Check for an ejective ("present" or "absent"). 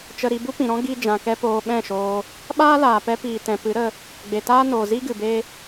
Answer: absent